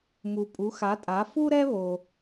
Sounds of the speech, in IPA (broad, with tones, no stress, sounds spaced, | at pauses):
m u˩ pʼ u˩˥ x a˩˥ tʼ a˩˥ f u˥ ɾ ɛ˥ β o˩